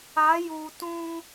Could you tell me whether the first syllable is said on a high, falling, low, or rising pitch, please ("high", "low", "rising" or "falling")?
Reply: rising